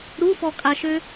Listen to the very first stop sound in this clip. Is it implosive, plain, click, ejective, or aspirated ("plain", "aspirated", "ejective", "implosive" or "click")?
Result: ejective